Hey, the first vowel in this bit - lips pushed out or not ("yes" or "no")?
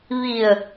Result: no